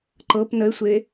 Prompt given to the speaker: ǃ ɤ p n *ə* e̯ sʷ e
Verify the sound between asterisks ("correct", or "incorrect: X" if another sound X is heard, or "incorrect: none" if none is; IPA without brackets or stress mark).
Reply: correct